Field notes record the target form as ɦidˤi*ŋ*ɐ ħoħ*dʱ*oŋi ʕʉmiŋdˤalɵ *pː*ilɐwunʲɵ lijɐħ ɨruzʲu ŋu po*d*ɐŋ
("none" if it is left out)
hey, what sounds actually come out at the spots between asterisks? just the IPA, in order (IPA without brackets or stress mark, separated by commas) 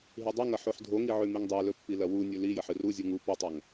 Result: ŋ, dʱ, pː, tˤ